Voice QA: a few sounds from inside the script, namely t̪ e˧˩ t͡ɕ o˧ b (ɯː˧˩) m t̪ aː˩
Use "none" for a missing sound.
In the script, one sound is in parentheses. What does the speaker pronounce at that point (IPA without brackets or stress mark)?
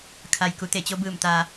ɯː˧˩